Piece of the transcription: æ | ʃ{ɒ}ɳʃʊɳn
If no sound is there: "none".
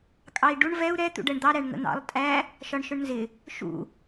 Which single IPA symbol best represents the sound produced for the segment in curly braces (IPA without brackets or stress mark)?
ɒ